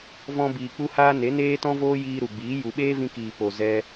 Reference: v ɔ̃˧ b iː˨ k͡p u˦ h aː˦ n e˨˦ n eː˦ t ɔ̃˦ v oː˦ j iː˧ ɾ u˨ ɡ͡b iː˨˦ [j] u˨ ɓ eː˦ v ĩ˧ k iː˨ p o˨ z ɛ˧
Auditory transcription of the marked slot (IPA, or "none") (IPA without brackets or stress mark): j